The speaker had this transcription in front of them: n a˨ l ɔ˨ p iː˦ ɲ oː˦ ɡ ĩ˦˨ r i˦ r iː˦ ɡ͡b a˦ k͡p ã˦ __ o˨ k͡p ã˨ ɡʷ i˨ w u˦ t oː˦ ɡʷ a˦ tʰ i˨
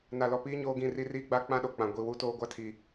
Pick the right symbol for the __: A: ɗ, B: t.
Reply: A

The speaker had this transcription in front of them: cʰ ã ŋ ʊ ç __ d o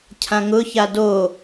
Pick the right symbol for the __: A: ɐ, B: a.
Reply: B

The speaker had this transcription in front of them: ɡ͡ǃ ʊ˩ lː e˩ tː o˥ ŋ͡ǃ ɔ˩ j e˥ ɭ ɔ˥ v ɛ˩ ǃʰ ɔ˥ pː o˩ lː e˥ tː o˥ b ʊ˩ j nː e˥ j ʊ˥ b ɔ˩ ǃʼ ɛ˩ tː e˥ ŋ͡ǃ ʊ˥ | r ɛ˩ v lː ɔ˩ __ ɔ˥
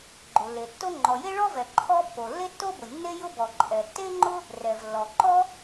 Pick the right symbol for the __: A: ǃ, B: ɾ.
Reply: A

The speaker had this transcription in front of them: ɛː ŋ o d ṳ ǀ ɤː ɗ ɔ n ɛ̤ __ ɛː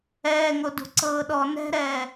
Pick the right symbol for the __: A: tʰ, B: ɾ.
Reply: B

